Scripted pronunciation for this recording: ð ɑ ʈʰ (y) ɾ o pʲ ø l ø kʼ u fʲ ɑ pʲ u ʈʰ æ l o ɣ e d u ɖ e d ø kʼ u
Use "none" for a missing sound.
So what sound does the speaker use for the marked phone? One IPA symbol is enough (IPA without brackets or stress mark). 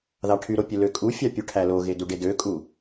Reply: y